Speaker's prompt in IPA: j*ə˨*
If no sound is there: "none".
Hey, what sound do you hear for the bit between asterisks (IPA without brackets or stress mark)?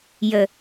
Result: ə˨